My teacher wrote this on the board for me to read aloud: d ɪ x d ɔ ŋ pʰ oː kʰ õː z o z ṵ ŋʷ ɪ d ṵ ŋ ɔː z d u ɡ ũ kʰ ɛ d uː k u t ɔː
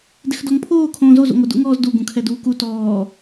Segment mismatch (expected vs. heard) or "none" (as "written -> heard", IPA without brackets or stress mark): none